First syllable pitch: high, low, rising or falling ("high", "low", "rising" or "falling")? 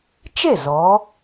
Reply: falling